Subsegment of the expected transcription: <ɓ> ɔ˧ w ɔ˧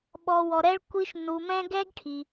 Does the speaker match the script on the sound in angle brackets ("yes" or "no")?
yes